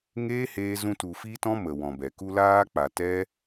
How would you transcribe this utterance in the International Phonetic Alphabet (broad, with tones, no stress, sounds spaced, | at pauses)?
ŋ eː˦ h eː˦ z ũ˦ t u˧ f i˦ t ɔ̃˦ m ə˨ w ɔ̃˨ b ɛ˨ k u˧ l aː˧ k͡p a˨ t ɛ˦